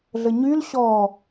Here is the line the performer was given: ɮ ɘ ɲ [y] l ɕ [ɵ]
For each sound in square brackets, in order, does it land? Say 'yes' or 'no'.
yes, no

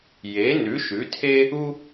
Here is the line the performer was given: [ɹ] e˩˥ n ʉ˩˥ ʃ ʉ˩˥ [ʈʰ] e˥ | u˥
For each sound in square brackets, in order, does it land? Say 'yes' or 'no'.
no, no

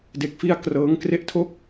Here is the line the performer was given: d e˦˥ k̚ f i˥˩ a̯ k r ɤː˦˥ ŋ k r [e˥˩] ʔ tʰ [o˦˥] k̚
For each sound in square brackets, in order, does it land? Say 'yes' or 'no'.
yes, no

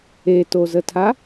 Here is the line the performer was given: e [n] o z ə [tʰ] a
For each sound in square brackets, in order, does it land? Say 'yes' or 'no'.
no, yes

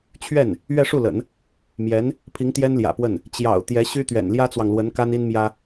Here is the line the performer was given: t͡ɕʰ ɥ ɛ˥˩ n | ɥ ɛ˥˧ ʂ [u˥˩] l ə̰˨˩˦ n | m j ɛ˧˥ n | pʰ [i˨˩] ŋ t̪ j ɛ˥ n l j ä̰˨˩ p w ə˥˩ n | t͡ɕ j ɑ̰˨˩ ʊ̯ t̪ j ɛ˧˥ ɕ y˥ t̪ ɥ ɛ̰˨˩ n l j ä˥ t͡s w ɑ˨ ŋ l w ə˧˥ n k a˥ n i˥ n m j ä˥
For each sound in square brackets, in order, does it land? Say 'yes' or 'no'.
yes, no

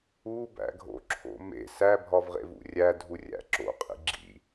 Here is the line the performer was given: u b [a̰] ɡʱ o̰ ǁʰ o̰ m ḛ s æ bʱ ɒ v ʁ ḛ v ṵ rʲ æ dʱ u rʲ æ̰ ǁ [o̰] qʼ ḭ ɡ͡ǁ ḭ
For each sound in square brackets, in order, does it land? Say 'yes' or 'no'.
no, yes

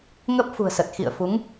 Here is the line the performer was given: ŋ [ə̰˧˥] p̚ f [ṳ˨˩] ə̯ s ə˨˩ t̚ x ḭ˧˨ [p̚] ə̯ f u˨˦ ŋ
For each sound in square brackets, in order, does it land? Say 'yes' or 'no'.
no, yes, no

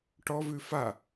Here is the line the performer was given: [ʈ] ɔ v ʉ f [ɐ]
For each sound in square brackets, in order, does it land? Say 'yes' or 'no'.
yes, no

